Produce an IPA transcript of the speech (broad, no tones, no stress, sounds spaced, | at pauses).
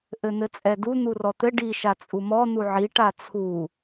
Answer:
ʔ ɘ n̪ ɘ t͡sʼ ɛ d u n̪ u r ɔ t̪ ɘ ɖ i ʃ a t͡sʼ u m ɔ n̪ u ʕ i ʈ a t͡sʰ u